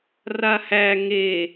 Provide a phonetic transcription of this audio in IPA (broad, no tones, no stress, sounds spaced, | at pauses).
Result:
r a h æ ŋ e